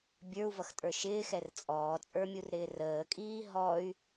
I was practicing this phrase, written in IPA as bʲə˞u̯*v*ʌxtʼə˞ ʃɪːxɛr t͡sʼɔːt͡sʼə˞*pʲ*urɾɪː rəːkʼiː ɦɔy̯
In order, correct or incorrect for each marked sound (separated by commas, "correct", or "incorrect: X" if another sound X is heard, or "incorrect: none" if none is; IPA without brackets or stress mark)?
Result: correct, incorrect: mʲ